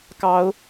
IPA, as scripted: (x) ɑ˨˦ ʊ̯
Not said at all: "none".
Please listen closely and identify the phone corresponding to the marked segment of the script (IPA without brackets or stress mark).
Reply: k